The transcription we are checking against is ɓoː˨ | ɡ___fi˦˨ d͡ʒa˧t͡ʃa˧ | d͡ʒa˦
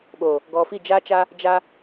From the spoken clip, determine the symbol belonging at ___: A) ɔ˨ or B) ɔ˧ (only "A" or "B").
A